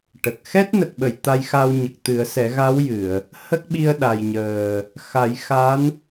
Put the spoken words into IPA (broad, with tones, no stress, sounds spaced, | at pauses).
ʈ ə˨˩ k̚ x ɛ˦˥ t̚ n ə˨˩ k̚ ɓ ə˨˩˨ j t̪ a˧ j x a˧ w ɲ ə˨˩ k̚ t̪ ɨ˨˩˦ ə̯ s ɛ˨˩˦ ɣ a˧˥ w j ɨ˨˩˨ ə̯ | h ə˦˥ k̚ ɓ i˧ ə̯ ɗ a˨˩ j ɲ əː˨˩ | x a˨˩˦ j x a˧˥ n